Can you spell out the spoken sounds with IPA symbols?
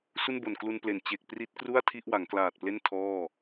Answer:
s u˥˩ n b o˨˩ n k l u˧ n p l e˨˩ n t͡ɕ e˨˩ k̚ p r i˦˥ t̚ k r u˥˩ a̯ tʰ i˥˩ ʔ w a˩˦ ŋ k l aː˨˩ t̚ p l e˥˩ n tʰ ɔː˥˩

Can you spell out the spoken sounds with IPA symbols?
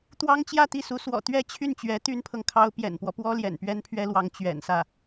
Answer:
t̪ w ɑ˥ ŋ t͡ɕ j ä˥˧ t̪ i˥˩ s u˧˥ s w ɔ̰˨˩ t̪ ɥ ɛ˥˧ t͡ɕʰ y˥˩ n t͡ɕ ɥ ɛ˧˥ t̪ y˥ n pʰ ɤ˨ ŋ kʰ ɑ˥ ʊ̯ p j ɛ̰˨˩ n p w ɔ˦ p w ɔ˥ l j ɛ̰˨˩ n p ɥ ɛ˥ n pʰ ɥ ɛ˥ l w ɑ˧˥ ŋ t͡ɕ ɥ ɛ̰˨˩ n s ä˥˩

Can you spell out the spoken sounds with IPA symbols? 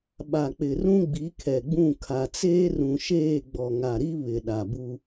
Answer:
ɓ a˨ k͡p ɪ˨ r ũ˦ ɡ͡b i˨˦ kʰ ɛ˨ ɡ͡b ũ˦˨ kʰ a˨ t͡s eː˦ r ũ˨ ʃ eː˦˨ ɡ͡b ɔ˨ ŋ a˨ ɾ i˦ β ɪ˨ ɗ a˨ b u˦

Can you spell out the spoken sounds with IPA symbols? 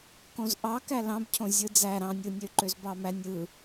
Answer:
k õ z ʔ ɑ k æ l ɑ̃ b cʰ õ zʲ ɯ d͡z æ ɾ ɑ̃ nʲ ɯ nʲ ø ǃ ø z b ɑ m æ nʲ ɯ

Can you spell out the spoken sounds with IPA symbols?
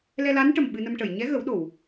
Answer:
l ɛ˧ l a˧˥ n ʈ ə˨˩ m ɓ ɨ˧ n ə˧ m ʈ ə˨˩˨ j ɲ ɛ˧˥ ɣ ə˨˩˦ w ɗ o˨˩˨ w

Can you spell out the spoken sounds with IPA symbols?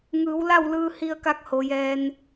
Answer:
ŋ ɯː˩˧ w l a˥˨ w l ɯː˧ h i˧ ə̯ k a˧˥ k̚ h o˩˧ j ɛː˧ n

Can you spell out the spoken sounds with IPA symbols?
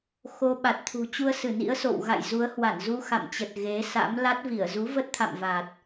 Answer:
x o˧ ɓ a˨˩ t̚ t̪ʰ ṳ˨˩ t͡ɕ u˧ ə̯ s ɨ˧˩ n ḭ˧˥ ə̯ s o̰˧˨ w ɣ a̰˧˨ j z u˨˦ ə̯ h w a˧˩ n z u˧ x a̰˧˨ m t͡ɕ ə˨˩ t̚ ɣ e˨˦ s a̰˧˥ m l a˦˥ t̚ v i˧˩ ə̯ z u˨˦ v ə˦˥ t̚ t̪ʰ a̰˧˨ m v a˨˩ t̚

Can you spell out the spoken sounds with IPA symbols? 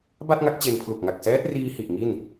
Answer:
b a˥˩ t̚ ŋ a˦˥ k̚ t͡ɕ e˧ n pʰ l u˨˩ k̚ ŋ a˨˩ k̚ s ɛː˦˥ t̚ r iː˧ h i˨˩ ʔ ŋ i˥˩ n

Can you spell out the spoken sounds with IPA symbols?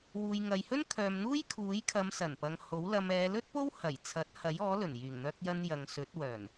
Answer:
w uː˨ j ŋ ɐ˨ j h ɵ˥ n kʰ œː˨ m n̪ uː˥ j kʰ uː˨˥ j kʰ ɐ˨˧ m s ɐ˨˩ n p ɐ˨ ŋ h o˨˥ w l ɐ˧ m ɛː˨˧ l ɵ˥ t̚ p o˥ w h ɐ˨˩ j t͡sʰ ɐ˨˥ t̚ h ɐ˨˥ j ɔː˨˥ l ɵ˨˩ n j yː˨˩ ŋ n̪ œː˧ k̚ j ɐ˧ n j ɐ˨ ŋ s ɵ˨˥ t̚ w œː˨˩ n

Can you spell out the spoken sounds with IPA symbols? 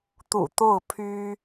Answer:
t̪ ṵ˨˩ t̪ o˥˩ ʊ̯ pʰ y˥

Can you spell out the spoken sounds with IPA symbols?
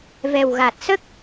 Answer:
v ɛ˨˩ w ɣ a˨˩ t̚ s ə˦˥ k̚

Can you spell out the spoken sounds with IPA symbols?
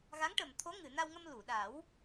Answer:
ɣ a˧˥ ŋ ʈ ə˨˩ m t̪ʰ o˧˥ ŋ ɨ˨˩˨ n a˧ w ŋ ə˧ m l u˨˩˨ ɗ a˨˩˦ w

